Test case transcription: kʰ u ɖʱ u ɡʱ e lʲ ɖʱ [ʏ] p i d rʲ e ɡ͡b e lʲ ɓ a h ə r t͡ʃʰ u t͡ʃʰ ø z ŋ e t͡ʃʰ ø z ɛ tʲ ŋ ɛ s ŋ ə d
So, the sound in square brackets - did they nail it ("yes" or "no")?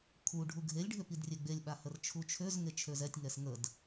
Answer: yes